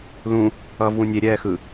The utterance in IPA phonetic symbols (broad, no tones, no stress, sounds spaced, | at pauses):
l ũ | ʌː v w ũ nʲ e ɾʲ ɛː x ɯ